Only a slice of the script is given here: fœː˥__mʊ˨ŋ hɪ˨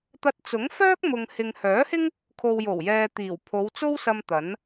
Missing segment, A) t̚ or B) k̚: B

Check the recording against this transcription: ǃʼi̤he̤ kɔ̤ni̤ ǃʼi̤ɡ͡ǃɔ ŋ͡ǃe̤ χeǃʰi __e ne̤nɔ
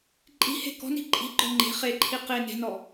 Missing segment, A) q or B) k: A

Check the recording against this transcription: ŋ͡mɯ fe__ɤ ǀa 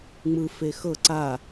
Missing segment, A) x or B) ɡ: A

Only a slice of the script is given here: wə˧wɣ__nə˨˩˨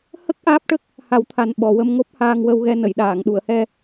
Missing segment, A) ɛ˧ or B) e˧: A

